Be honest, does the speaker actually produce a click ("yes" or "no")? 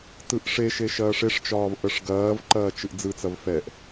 yes